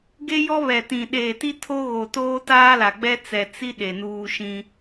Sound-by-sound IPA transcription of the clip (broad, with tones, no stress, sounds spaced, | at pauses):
ɡ e˦ j ɔ˦ β ɛ˨ t ĩ˨ ɗ eː˨ t i˦ tʰ o˦ ɣ o˨ t oː˦ t aː˦ l a˨ ɡ͡b ɛ˦ t͡s ɛ˨ t͡s i˦ ɗ e˨ n uː˦ ʃ ĩ˦